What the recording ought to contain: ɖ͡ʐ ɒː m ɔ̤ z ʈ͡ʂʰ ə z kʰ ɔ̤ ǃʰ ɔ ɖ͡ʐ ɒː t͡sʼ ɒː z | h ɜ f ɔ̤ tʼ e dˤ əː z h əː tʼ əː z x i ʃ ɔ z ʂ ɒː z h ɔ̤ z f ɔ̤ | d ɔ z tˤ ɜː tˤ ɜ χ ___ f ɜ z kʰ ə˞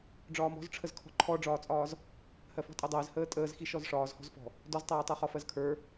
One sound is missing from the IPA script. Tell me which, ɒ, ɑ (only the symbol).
ɒ